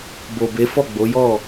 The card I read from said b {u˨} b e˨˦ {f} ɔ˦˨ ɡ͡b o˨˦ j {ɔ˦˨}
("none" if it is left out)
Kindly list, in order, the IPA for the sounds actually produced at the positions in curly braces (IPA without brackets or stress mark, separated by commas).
o˨, f, ɔ˦˨